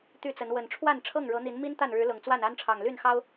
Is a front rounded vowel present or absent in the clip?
present